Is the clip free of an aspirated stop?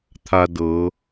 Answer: no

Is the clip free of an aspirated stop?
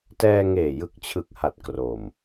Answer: no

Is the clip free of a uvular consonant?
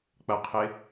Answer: no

